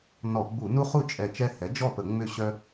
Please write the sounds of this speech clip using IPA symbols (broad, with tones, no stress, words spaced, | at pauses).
nɔ˧˩˧ɡ͡bu˧˩˧nu˦χu˥˩ t͡ʃʼɛ˧˩t͡ʃɛ˦hɛ˩˥ d͡ʒɔ˥˩pə˧˩˧ ŋ͡mʏ˥˩ɕœ˦